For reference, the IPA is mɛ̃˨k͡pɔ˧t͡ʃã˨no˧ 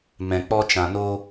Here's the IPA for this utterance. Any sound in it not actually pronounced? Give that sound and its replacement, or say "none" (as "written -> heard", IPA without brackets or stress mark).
none